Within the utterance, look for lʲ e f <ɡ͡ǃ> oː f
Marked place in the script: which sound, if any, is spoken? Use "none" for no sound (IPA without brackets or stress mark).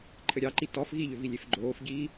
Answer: ɡ͡ǃ